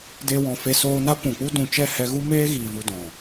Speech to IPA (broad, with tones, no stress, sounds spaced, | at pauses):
d e˧ w ɔ̃˨ f e˧ s oː˧ n a˦ kʷ ũ˨ k͡p u˦ d ũ˨ t͡ʃ ɛ˦˨ h ɛ˧ ɣ u˦ m eː˦ ɣ iː˨ v u˧ d ɔ̃˨